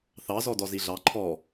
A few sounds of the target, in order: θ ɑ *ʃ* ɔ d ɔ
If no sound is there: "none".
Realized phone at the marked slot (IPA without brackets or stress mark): z